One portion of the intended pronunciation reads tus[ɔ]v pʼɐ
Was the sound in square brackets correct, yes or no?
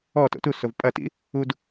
no